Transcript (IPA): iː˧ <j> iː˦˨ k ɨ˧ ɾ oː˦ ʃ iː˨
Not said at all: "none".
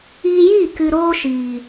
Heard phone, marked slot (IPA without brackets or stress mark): j